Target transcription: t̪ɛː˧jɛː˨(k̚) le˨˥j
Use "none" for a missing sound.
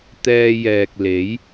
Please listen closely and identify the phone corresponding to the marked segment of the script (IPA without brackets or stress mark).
k̚